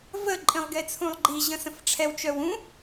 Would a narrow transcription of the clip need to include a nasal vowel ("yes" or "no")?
yes